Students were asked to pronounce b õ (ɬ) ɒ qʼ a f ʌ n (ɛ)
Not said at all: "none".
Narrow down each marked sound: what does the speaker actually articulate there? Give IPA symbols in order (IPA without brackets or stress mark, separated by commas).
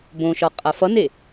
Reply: ʃ, e